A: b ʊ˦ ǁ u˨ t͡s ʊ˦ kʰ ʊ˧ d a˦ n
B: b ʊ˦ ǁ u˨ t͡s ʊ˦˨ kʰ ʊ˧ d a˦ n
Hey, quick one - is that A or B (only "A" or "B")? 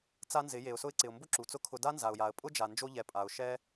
A